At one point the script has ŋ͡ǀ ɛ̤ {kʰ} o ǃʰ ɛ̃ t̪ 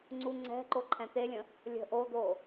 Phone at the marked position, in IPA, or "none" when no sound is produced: ǃ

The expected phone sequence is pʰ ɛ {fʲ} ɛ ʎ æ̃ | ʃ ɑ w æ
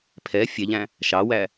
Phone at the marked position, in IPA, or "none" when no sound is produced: fʲ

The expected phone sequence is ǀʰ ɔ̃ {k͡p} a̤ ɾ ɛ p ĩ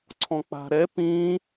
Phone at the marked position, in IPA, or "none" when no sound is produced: k͡p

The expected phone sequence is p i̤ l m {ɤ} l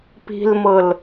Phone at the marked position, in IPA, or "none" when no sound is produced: ɤ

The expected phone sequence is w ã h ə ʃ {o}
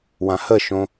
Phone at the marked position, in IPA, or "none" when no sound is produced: õ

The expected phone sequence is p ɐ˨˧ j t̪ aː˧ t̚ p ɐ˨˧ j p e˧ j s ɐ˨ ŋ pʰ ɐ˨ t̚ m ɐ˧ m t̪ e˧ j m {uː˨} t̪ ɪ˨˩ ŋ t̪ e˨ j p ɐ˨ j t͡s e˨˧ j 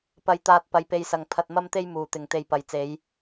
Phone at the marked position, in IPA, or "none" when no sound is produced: uː˨˩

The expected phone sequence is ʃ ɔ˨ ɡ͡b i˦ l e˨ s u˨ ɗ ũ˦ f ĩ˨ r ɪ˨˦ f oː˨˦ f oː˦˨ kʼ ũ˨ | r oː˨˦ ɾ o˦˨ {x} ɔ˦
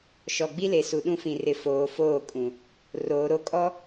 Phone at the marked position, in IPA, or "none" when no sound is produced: kʼ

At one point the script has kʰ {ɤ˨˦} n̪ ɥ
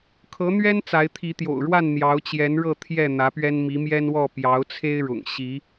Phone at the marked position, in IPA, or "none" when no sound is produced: ɤ˨˦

